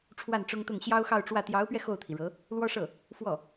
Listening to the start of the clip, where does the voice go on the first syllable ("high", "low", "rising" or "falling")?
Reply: falling